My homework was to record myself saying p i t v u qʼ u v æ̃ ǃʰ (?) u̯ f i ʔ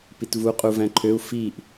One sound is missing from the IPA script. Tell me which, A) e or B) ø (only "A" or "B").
B